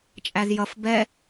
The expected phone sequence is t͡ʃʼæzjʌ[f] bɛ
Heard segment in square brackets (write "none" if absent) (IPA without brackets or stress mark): f